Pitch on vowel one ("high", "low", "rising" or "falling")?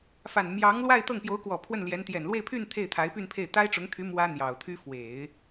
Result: low